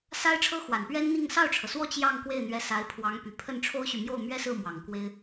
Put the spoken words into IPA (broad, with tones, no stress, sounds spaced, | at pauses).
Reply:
s a˥ ɪ̯ ʈ͡ʂʰ ɤ˥ x w a˨˩ n p ɥ ɛ˥ n n̪ i˥˧ ŋ s ɑ˥˩ ʊ̯ ʈ͡ʂʰ ɤ˩ s w ɔ˥˧ t͡ɕ j ɑ˥˧ ŋ k w e˥˩ ɪ̯ n̪ ɥ ɛ˧˥ s a˧˥ ɪ̯ pʰ w ɑ˧˥ ŋ p y˨˩ pʰ ə˥˩ n ʈ͡ʂʰ o˥ ʊ̯ ɕ y˨ m j o˥˩ ʊ̯ m ɥ ɛ˥ s ɹ̩˥˩ m w ɑ˨˩ ŋ k w e˥ ɪ̯